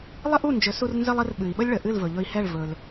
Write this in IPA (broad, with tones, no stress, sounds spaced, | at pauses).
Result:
lˠ ə˥ ʔ u˥˩ n d͡ʒ ɵ˩˥ s u˧ r n z ə˥ lˠ ə˩˥ r ɓ ɨ˩ i̯ ɓ ə˥ lʲ ɭ ə˩ ʔ ɨ˥˩ l v ɵ˩ ʎ ɵ˧ i̯ h ɛ˥˩ ɭ v ɵ˩ l